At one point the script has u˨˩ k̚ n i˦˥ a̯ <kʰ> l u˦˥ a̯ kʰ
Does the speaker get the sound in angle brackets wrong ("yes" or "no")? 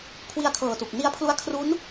yes